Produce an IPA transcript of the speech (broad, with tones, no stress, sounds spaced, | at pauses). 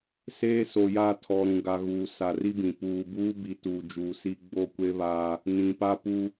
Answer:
s eː˦ s o˨ j a˦˨ tʰ ɔ˨ ɾ ũ˨ ɡ a˨ ɣ uː˨ s a˨ r i˦ b ĩ˨ p uː˨ b uː˦ b i˨˦ t uː˨ d͡ʒ uː˨ s i˦ ɡ͡b o˦˨ kʷ e˦ β aː˦ | n ĩ˨ p a˦ p u˦